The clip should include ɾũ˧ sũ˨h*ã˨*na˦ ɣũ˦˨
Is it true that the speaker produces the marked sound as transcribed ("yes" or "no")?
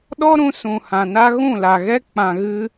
yes